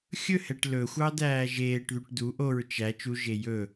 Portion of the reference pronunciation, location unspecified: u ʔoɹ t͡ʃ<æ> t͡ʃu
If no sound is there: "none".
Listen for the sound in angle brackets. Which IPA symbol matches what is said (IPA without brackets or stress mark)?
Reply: æ